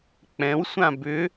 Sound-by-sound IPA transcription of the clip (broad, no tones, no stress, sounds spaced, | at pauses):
k͡p ɛ̃ w sʷ ã b ʏ